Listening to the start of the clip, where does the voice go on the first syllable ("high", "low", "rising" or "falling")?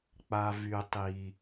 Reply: low